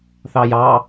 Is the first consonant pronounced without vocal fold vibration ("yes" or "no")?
yes